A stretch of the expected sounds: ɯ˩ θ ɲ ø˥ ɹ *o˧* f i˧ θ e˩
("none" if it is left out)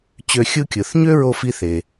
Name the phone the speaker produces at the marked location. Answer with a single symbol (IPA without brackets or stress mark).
o˧